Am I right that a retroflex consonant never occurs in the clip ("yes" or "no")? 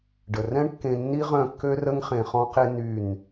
no